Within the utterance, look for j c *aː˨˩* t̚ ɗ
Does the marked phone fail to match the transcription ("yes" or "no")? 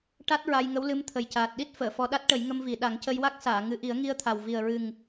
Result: no